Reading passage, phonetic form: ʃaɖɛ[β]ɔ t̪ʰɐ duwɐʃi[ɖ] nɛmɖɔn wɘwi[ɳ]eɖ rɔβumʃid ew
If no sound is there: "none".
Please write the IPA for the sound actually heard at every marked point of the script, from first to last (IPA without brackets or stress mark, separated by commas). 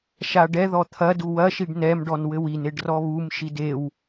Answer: ð, ɖ, n